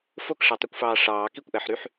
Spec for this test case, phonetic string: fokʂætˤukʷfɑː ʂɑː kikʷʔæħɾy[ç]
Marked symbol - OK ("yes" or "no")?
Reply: no